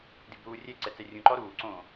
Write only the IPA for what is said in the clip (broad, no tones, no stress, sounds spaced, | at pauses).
d i b ɾ uː rʲ ɛ ǀ ɛ t͡s ɛ rʲ ũ ǃ ɔ ɾ uː ǀ õː